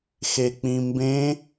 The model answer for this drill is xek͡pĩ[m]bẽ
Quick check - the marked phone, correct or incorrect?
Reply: correct